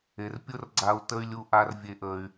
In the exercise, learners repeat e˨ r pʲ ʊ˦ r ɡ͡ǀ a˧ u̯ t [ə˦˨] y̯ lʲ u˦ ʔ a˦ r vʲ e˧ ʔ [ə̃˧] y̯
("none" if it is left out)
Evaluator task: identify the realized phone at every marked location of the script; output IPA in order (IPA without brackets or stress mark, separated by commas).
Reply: ə˦, ə˧